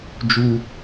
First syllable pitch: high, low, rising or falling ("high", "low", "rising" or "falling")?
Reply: high